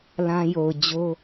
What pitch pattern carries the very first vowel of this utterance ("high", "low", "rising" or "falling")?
high